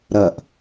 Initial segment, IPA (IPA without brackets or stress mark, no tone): ɾ